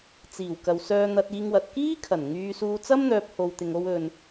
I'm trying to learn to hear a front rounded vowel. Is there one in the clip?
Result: yes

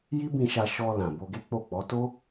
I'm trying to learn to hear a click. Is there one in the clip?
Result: no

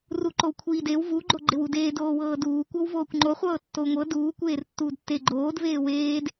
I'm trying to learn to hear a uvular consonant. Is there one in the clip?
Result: yes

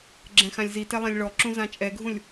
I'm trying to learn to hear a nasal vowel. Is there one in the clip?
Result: yes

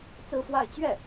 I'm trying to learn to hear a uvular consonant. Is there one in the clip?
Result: no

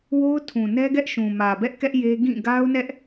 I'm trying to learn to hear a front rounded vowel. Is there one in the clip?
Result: no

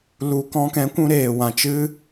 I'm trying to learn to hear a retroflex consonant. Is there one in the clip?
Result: no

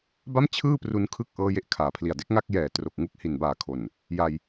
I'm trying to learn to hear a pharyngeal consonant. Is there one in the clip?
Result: no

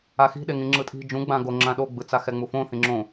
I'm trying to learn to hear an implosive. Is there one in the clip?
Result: yes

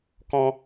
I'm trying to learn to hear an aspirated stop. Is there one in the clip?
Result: no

